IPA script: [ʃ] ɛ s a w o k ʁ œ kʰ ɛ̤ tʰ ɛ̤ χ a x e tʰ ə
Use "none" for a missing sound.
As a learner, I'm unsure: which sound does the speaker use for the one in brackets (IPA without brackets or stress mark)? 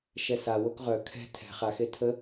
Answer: ʃ